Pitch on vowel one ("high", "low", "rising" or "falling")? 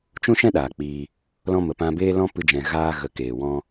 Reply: high